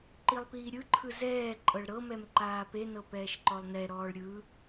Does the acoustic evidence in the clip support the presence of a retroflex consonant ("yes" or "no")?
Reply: yes